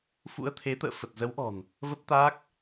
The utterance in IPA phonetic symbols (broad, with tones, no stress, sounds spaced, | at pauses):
f ṵ˧˥ ə̯ t̪ʰ e˨˦ t̪ ə̰ː˧˨ f ə˨˩ t̚ z ə˨˦ w ʔ ɔ̤˨˩ n | v ə˦˥ p̚ t̪ aː˦˥ k̚